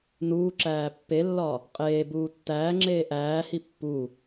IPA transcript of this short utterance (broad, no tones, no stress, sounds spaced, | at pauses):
n uː ǁ æː pː e lː ɒ | qʼ eː b uː tː æː ŋ͡ǁ eː ʔ æː h i pː u